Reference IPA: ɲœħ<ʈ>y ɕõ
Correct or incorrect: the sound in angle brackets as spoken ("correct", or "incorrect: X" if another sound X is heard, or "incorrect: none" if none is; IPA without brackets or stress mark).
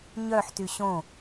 incorrect: t